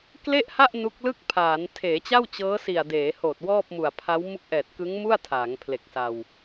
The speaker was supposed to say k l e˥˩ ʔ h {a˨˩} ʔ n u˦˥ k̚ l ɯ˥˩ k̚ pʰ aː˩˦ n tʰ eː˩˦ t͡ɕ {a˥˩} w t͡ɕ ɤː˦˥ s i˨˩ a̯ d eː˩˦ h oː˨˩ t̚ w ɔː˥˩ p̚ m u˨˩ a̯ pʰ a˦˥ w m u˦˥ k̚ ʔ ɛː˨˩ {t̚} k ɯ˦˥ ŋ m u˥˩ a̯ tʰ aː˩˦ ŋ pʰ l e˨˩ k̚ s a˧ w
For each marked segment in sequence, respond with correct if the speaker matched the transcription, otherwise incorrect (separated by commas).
incorrect, correct, correct